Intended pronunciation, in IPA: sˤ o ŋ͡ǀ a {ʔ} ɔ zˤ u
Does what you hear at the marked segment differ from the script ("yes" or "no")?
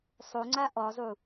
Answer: no